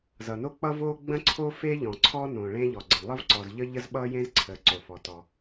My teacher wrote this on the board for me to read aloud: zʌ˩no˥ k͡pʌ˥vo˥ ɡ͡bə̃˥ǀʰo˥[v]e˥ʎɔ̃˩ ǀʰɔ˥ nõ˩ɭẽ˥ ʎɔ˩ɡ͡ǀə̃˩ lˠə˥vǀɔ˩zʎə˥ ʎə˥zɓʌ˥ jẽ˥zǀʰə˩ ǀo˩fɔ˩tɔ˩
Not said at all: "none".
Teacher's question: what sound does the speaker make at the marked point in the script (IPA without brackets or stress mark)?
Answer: f